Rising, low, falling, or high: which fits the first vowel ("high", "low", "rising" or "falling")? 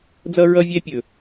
high